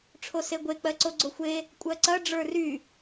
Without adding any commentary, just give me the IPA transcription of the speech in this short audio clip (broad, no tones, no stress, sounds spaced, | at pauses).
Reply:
ʈ͡ʂʰ o s e ɡʷ e k͡p ɜ ǀ o ɡ͡ǀ o xʷ e | kʷʼ ɜ ǀ ɐ ɖ͡ʐ ə˞ r y